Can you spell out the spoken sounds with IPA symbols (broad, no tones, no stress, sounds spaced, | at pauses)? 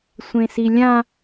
sʷ ẽ s i lʲ ã